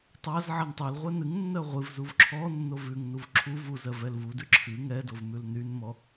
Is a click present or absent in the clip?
present